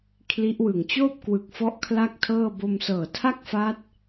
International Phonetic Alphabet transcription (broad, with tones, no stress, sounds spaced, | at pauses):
kʰ l i˦˥ ʔ w ɯ˨˩ ŋ t͡ɕ oː˥˩ p̚ k w ɯ˨˩ k̚ f ɔ˦˥ ʔ kʰ l a˥˩ k̚ tʰ ɤː˥˩ b o˧ m s ɤː˨˩ tʰ a˥˩ k̚ f aː˦˥ t̚